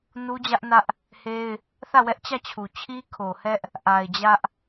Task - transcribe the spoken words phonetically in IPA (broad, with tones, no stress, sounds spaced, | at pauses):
n u˦ d͡ʑ ä˦ ʔ n ä˦ ʔ | h e˦ ɪ̯ | θ ä˦˨ w ɛ˦ ʔ t͡ɕ ä˦˨ t͡ɕʰ u˨ t͡ɕʰ i˦ kʰ o˨ h ɛ˦ ʔ | ʔ a˨ ɪ̯ d͡ʑ ä˦ ʔ